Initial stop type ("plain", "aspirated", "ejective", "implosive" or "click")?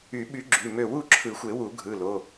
implosive